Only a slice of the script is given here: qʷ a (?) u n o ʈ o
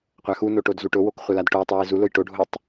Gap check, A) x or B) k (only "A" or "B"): A